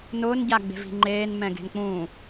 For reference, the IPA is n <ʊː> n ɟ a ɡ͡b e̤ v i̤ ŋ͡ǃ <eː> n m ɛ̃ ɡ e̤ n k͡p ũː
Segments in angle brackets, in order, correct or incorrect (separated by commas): correct, correct